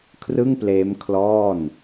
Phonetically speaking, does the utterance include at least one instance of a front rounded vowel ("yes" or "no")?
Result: no